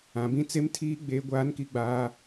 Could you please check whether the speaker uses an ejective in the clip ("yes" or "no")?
no